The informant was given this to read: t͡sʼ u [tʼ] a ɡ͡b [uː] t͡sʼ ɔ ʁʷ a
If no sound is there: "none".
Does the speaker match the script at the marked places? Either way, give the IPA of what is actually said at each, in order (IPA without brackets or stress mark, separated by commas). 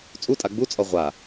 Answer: tʼ, u